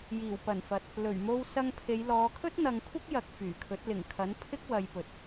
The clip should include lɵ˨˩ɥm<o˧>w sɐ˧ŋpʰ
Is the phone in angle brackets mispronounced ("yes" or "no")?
no